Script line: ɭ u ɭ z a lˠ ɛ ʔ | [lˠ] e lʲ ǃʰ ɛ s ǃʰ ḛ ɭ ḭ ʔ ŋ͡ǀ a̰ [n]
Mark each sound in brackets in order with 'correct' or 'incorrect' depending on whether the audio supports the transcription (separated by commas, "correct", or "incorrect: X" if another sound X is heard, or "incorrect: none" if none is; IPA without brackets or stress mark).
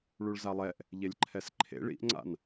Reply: incorrect: ʎ, correct